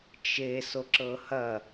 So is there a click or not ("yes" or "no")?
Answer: yes